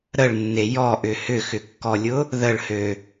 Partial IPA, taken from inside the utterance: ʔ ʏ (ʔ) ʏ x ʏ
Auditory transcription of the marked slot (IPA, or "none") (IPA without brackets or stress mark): h